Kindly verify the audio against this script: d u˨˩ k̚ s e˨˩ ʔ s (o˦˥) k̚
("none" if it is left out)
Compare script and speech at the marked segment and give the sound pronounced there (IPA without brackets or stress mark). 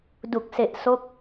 o˦˥